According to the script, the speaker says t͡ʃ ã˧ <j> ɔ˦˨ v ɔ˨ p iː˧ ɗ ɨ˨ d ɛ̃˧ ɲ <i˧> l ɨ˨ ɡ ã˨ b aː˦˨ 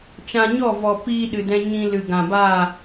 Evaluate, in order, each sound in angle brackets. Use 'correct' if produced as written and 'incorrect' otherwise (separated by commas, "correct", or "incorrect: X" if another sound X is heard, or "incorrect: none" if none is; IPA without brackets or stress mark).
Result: incorrect: ɲ, incorrect: ĩ˧